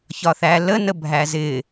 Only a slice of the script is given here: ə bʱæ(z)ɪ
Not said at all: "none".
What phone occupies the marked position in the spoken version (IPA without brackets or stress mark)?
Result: z